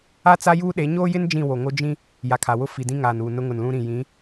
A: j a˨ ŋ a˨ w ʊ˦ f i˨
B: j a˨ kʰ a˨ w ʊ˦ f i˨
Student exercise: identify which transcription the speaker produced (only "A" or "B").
B